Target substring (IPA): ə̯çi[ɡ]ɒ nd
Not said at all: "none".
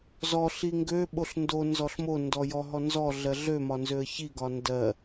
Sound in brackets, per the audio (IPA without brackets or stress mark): ɡ